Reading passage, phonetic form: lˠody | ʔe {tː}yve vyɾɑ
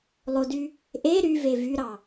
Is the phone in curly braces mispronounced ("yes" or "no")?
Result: yes